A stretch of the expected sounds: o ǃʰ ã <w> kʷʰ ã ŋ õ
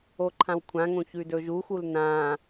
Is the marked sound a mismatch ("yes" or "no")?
no